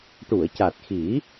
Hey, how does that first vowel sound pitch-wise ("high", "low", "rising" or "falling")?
low